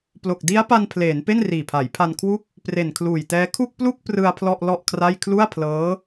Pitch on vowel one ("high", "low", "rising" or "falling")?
low